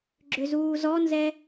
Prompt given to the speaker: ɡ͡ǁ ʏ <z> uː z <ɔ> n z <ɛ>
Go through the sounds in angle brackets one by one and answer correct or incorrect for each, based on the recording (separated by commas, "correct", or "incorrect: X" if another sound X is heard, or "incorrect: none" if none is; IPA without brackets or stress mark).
correct, correct, correct